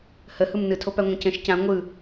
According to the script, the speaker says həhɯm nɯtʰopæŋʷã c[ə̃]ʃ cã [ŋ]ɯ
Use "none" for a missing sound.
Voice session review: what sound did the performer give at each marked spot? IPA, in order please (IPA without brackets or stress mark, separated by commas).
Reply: ə̃, ŋʷ